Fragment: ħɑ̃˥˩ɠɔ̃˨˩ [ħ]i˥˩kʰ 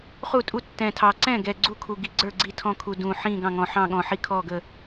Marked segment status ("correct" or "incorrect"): correct